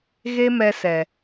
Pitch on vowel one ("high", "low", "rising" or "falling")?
high